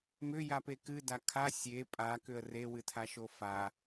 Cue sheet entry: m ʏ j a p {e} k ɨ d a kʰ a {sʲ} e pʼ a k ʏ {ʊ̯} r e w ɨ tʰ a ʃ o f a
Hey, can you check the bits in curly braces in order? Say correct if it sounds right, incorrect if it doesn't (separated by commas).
correct, correct, incorrect